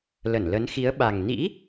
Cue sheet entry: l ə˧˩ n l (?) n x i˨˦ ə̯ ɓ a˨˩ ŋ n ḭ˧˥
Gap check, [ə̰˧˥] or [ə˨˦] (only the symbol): ə˨˦